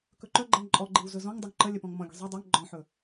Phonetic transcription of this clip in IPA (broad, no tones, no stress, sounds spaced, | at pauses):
k ɵ ǃ œ ɡ͡ǃ ɛ ŋ ǃʼ ɔ ɡ͡ǃ i w z ɵ z ɔ̃ ŋ dˤ œ ŋ ǃ ə lʲ ə p ɔ̃ ŋ m ɔ̃ ɡʲ ə̤ zˤ ɵ dˤ ɛ ŋ ɡ͡ǃ ɔ̃ ħ ɵ